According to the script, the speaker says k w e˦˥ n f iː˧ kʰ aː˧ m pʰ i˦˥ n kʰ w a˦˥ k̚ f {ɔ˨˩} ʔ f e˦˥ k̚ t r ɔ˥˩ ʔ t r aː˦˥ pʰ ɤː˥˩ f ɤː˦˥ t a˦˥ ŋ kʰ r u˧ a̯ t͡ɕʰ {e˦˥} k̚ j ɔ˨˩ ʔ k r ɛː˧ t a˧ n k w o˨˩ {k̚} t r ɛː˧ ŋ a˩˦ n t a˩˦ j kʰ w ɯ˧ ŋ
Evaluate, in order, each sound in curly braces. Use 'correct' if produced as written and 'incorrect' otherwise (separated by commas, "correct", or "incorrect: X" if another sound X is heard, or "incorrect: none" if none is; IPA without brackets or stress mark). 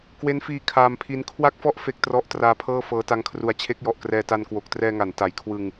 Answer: incorrect: ɔ˦˥, correct, correct